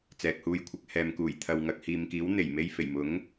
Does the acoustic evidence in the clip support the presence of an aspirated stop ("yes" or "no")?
yes